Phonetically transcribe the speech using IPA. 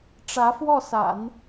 ʈ͡ʂ ä˧˥ f w ɔ˥˩ s a̰˨˩˦ n

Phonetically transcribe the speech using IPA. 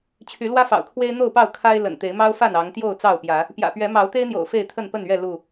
t͡ɕʰ y˨˦ l w ä˦ f ɑ̰˨˩ ʊ̯ kʰ w e˦ ɪ̯ n̪ o˥˨ ʊ̯ p ɑ˥˨ ʊ̯ kʰ a˦ ɪ̯ l ə̰˨˩ n t̪ e˨˦ ɪ̯ m ɑ˦ ʊ̯ f a˥˨ n ɑ˨˦ ŋ t̪ j o˥˨ ʊ̯ t͡s ɑ˥˨ ʊ̯ p j ä˨˦ | p j ä̰˨˩ p ɥ ɛ˨˦ m ɑ˨˦ ʊ̯ t̪ e˦ ɪ̯ n̪ j o̰˨˩ ʊ̯ f e˥˨ ɪ̯ t̪ʰ ə˥˨ n p ə˥˨ n ɥ ɛ˥˨ l u˥˨

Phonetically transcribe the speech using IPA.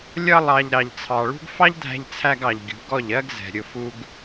lʲ ʌ˧ lˠ ɑ˨ ʎ ɾ ɑ˨ ʎ t͡sʰ ɑ˨ ɭ ṳ˦ ɡ f ɑ˦ ʎ dʱ æ̤˧ ʎ t͡sʰ æ˧ ɡ ɑ˨ ʎ ɡʲ ṳ˨˦ ɡ ɔ˦˨ ʎ ɜ˦ ɡ z ɛ̤˨ ɾʲ ʊ˧ f u˦ ɡ

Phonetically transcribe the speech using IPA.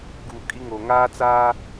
ɡ u˨ kʼ i˦ ŋ o˨ ŋ aː˦ t͡s aː˦

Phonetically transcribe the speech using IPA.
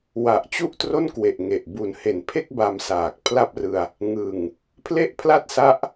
w a˨˩ ʔ t͡ɕ u˥˩ ʔ t r o˥˩ n k w e˨˩ ʔ ŋ e˨˩ ʔ b u˨˩ n h e˨˩ n pʰ e˥˩ k̚ b a˧ m s aː˨˩ k̚ pʰ l a˥˩ p̚ r ɯ˧ a̯ | ŋ ɯ˨˩ ŋ | pʰ l e˥˩ ʔ pʰ l a˥˩ t̚ s a˦˥ ʔ

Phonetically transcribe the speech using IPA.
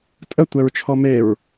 tʼ ə tʷ ɛ ɹ t͡ʃʰ ɔ m e ɹ

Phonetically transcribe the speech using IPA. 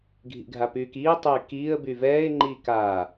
ɡʱ ḭ ɡʱ a p yː k iː tˤ yː k iː ə̯ b y v ɛː ɪ̯ ŋ͡ǃ iː k aː

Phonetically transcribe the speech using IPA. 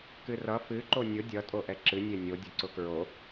k ɨ r ʌ f ɨ ǃ o nʲ ʊ dʲ ʌ tʼ o ʔ ɛ ǁ ɨ nʲ e nʲ o dʲ ʊ ǀ ʊ k ɹ o

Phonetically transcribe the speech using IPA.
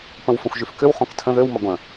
p ə̃ w f ə̃ xʷ ʒ y f k ʏ w χ õ k tʰ ə̃ ð ø w m ɐ ɡʷ ə̃

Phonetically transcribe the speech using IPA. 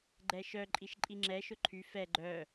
ɡ͡ǃ ɛ ʃ œ ǃʼ i ʃ ǃʼ i ŋ͡ǁ ɛ ʃ ʊ ǃʰ y f ɛ ɡ͡ǃ œ

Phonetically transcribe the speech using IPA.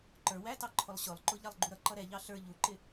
ǃ ə˞ w æ t ɑ ǃʰ ʊ lˠ ɕ ʊ lˠ ǃ ʊ ʎ ɑ lˠ ɡ͡ǃ u ɾ ʌ ǃ ʌ ɾ ɛ ʎ ɑ ɬ ə˞ ʎ u ǃ ɪ

